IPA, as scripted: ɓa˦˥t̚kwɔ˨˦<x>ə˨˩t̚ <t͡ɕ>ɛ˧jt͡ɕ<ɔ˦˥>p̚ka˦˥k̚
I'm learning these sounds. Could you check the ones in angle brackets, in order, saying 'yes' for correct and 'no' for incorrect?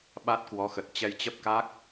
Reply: yes, yes, no

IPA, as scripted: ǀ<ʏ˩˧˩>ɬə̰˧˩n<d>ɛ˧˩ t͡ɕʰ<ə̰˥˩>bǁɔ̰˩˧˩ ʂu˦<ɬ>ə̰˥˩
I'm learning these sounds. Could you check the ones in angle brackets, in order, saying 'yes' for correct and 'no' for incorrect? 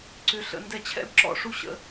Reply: yes, yes, no, no

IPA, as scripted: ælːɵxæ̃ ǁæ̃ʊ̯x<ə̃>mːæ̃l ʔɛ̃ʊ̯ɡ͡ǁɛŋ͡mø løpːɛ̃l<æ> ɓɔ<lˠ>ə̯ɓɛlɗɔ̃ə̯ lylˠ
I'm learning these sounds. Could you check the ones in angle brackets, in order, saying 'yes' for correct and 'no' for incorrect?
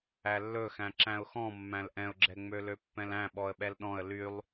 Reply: no, no, no

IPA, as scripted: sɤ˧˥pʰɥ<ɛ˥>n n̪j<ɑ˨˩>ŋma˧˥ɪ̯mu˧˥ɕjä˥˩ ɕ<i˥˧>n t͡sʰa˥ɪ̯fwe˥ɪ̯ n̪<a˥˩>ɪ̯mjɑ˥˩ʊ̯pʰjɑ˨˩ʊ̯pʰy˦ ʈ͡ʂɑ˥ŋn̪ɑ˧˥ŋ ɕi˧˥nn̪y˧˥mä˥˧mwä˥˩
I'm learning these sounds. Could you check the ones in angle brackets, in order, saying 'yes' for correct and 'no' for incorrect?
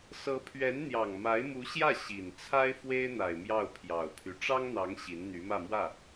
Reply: no, yes, no, no

